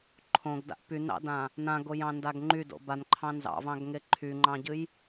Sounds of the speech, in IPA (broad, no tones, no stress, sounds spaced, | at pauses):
ǃʰ õ ɡ d a̰ ʔ p y n ɑ̰ d ã | n ã ɡ o j ɑ̃ n d a ɡ ŋ͡ǃ y d o̰ b a n ǃʰ ɑ̃ n z ɑ̰ v ɑ̃ ɡ ŋ e ǃʰ y ŋ͡ǃ ɑ̃ ɟ ɨ j